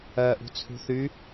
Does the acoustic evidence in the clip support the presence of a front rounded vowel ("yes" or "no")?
yes